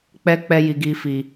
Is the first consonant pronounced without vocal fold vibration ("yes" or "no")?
yes